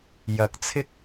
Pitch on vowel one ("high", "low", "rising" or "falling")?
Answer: rising